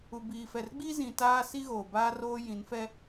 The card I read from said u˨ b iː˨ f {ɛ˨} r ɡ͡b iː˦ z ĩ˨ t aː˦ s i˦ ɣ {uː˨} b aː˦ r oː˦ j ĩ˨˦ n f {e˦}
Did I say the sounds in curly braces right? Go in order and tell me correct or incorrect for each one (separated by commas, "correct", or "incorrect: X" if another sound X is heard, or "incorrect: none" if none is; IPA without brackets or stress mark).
correct, incorrect: oː˨, incorrect: ɛ˦